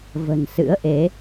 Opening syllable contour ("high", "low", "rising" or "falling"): low